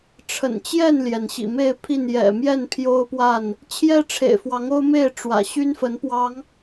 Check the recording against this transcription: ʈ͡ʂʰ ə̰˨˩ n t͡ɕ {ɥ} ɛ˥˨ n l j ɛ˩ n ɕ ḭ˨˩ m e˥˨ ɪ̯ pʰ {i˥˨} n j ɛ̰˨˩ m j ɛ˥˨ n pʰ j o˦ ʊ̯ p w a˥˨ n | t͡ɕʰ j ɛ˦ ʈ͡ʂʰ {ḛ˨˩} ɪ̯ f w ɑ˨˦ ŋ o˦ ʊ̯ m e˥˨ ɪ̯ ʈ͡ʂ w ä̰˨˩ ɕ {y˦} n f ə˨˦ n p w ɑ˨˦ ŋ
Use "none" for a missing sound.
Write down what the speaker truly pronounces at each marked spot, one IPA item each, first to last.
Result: j, i˥˨, ḛ˨˩, y˦

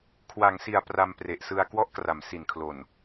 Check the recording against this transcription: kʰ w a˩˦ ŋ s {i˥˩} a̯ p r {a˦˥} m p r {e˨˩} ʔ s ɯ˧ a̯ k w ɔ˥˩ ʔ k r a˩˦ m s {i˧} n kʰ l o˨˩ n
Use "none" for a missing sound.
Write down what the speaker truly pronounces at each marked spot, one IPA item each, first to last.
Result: i˨˩, a˧, e˨˩, i˨˩

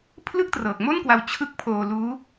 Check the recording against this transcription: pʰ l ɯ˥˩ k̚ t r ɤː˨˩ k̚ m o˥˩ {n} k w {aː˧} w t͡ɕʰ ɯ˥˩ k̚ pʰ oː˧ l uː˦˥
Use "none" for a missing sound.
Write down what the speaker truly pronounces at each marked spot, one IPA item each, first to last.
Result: n, a˧

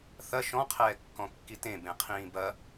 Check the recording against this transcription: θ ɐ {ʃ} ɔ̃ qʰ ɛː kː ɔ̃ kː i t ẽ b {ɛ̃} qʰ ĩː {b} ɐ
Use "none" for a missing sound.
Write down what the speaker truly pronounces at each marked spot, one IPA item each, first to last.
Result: ʃ, ẽ, b

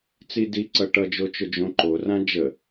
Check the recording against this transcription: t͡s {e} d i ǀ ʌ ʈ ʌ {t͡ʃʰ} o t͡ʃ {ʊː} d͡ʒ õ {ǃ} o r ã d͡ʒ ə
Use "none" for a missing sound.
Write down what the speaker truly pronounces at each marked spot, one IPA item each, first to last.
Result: i, d͡ʒ, ʊ, ǃ

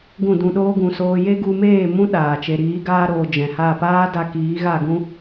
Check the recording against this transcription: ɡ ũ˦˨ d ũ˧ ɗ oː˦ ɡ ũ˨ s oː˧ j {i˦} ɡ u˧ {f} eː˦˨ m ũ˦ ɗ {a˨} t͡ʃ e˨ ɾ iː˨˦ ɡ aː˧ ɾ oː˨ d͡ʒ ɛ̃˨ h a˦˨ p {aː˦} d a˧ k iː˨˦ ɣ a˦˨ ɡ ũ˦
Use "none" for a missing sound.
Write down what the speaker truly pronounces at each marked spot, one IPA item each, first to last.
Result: e˦, m, aː˨, aː˦

